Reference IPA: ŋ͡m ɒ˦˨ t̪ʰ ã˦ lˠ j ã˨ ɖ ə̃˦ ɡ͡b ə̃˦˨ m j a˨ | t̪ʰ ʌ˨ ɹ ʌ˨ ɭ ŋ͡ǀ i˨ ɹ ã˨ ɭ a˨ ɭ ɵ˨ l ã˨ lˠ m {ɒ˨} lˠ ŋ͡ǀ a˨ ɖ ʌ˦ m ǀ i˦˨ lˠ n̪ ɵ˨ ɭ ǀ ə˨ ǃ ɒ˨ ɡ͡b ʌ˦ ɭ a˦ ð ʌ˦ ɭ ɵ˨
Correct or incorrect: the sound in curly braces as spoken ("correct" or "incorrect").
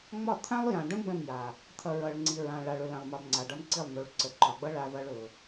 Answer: incorrect